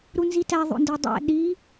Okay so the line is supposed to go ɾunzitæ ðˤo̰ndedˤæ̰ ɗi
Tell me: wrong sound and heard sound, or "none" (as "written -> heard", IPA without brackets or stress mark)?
none